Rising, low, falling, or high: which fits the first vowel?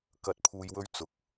rising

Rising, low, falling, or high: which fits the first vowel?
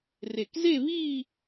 low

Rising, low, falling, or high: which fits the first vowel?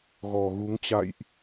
low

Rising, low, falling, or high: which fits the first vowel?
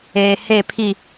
low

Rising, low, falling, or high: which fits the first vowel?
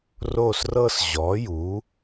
falling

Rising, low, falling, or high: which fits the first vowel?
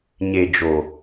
low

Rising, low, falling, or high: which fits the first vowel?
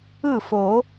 falling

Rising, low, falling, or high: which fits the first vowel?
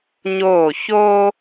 falling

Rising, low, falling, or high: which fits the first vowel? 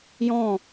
falling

